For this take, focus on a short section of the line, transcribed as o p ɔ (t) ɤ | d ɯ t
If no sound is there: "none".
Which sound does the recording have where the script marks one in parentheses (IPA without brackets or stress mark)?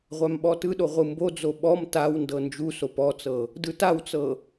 t͡s